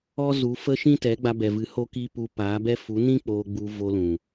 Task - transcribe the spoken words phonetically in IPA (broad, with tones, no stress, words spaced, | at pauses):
ɔ˦ zu˨˦fə˦ ʃĩ˦tɛ˨˦ ɡ͡ba˧bɛ˨vɨ˨˦ ho˦kiː˦ pu˧paː˨˦bɛ˦ fu˨˦nĩ˦ k͡poː˧ɡ͡bu˧vo˧lũ˨